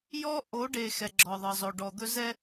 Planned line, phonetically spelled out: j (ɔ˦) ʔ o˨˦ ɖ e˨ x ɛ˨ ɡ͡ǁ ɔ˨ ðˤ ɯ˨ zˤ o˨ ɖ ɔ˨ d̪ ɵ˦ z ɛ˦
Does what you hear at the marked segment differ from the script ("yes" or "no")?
no